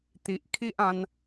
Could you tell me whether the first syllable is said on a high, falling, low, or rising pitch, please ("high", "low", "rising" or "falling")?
low